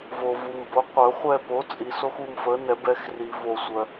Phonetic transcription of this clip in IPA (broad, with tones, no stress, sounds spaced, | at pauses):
v o˨ v u˨ m b o˩˥ qʷ œ˨˩˦ χʷ ɛ˦˨ p o˩˥ t͡sʼ i˨ s o˦ x u˦˨ m f ə˩˥ n ɛ˨˩˦ b ɛ˩˥ x r i˨˩˦ v o˨ sʷ œ˨